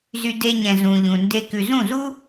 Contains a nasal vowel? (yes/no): yes